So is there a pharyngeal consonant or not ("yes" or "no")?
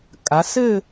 no